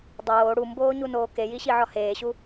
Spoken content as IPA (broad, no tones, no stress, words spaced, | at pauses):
dˤoː ɽumboːɲunoː kejiɕiʕɒ heːɕu